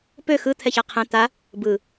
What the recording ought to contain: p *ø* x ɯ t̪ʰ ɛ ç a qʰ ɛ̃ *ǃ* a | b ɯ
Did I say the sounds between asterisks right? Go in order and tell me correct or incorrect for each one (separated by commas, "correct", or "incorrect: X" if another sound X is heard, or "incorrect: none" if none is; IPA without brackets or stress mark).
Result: correct, incorrect: t̪